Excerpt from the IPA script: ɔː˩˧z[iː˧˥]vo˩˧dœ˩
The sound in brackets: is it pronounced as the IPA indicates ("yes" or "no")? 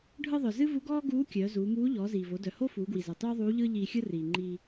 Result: no